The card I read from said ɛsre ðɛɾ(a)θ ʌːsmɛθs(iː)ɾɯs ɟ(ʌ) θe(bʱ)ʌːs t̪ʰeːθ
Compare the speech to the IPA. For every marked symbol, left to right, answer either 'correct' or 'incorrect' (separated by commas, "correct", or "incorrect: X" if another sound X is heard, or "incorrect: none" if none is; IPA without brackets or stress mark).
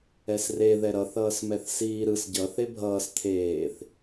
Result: incorrect: ʌ, correct, correct, correct